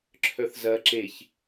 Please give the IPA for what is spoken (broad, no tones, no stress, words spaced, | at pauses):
ǁʰœθzɐ ǁeç